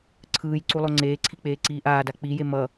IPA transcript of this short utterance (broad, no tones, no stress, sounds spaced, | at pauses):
ǀʰ ɯː j ǀ u lˠ o ŋ͡ǀ eː ǀʰ i k͡p eː ǀ iː ʔ aː d a k͡p i j e m ʌ